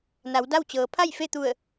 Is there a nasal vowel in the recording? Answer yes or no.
no